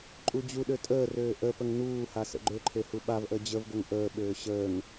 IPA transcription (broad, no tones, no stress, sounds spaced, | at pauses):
ǃʼ u d͡ʑ u ɗ ø tʼ əː r øː ʔ ə p ə ŋ n uː h a s ə̰ ɡ͡ǃ ø ǃʰ e h u ɓ a v ʔ əː d͡ʑ ə v ɡ ɵ ŋ ʔ əː ɓ øː ɕ əː ŋ